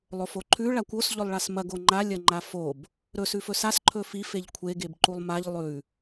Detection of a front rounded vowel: absent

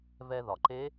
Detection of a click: present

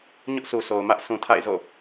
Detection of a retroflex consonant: absent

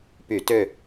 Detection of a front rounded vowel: present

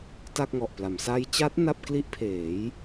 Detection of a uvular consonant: absent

